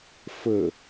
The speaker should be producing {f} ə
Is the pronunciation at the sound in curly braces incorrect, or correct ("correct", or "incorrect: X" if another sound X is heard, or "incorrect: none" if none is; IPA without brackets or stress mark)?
correct